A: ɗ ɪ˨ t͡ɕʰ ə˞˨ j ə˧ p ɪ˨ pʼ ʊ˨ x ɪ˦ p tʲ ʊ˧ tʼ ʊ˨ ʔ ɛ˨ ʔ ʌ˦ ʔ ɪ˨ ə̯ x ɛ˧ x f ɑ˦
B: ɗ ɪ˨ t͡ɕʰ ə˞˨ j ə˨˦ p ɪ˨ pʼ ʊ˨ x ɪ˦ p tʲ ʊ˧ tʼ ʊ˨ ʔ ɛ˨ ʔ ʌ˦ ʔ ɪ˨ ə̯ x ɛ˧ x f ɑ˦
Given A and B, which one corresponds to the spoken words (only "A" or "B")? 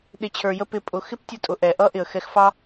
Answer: A